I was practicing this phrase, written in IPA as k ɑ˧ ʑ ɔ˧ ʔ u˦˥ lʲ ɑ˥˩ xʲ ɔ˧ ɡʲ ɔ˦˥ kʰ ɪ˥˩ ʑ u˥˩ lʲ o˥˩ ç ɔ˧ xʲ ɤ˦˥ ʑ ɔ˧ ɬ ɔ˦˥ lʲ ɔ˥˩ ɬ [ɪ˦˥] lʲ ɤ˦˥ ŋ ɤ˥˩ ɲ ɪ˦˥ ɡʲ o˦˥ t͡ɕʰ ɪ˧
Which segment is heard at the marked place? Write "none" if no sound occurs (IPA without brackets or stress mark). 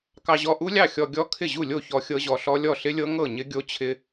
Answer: ɪ˦˥